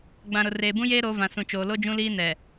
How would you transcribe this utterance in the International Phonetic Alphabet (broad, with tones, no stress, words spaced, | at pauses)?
ɡ͡bã˨ɾʊ˨ reː˨bũ˦jeː˦ ɾo˨˦vã˨ sũ˨t͡ʃoː˨ lo˦d͡ʒũ˦liː˦ nɛ˨